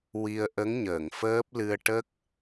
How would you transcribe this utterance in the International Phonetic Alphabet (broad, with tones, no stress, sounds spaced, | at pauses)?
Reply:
w i˧ ə̯ ʔ ə˧˥ ŋ ɲ əː˨˩˨ ŋ f əː˦˥ p̚ l ɨ˧ ə̯ ʈ ə˦˥ k̚